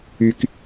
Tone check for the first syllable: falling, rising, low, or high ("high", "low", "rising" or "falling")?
low